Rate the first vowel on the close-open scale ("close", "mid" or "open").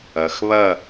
open